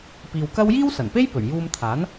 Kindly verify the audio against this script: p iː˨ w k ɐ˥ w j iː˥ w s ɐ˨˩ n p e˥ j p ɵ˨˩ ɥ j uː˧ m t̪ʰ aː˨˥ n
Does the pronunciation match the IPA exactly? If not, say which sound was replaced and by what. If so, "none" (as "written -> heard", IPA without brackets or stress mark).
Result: none